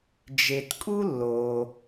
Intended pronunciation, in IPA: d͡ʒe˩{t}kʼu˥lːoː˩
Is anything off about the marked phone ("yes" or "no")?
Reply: no